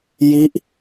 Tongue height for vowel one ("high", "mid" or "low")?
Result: high